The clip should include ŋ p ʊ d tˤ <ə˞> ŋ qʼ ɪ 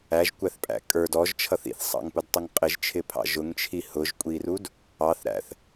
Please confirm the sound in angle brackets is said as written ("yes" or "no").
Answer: no